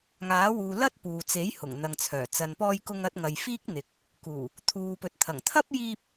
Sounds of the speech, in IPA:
ŋaː˨˥wuː˨ lɐ˥t̚ puː˨t͡se˨˥j hʊ˨˩ŋn̪ɐ˨ŋt͡sʰœː˨˩ t͡sɐ˨npɔː˧jkʊ˧ŋ ɐ˧t̚ŋɐ˨j fiː˥k̚n̪ɪ˨k̚ | kuː˨˩ | t̪ʰuː˨pɵ˨t̚ t̪ʰɐ˨˩ŋ t̪ʰɐ˥p̚jiː˧p̚

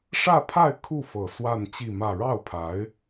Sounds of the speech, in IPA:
ʂä˥˧pʰa˥˧ɪ̯ kʰu˥˩fɤ˨˩ swa˥˧nt͡ɕi˥˧mä˥˧ ɻɑ˥˩ʊ̯pʰa˧˥ɪ̯

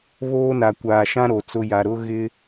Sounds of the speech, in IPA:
βoː˦na˨ kʷaː˨ʃã˦ ɾo˨t͡sʊ˦ja˨ ɾʊ˦ɣɪ˦

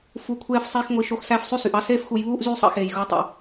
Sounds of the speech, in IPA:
fu˨kʷʰeː˧fsˤeː˧xŋʷi˨ ʃo˧xsæ˦˨fsˤy˦sy˨ʔ ɑ˦seː˦fxu˧j βuː˦ʔ zyː˦sˤɑ̰˦xeː˨jɣu˨˦ tˤḭ˧

